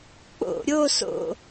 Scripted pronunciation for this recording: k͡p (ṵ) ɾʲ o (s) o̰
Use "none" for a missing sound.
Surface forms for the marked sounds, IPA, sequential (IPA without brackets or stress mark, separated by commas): o̰, s